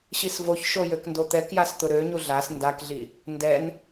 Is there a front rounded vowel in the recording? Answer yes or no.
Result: yes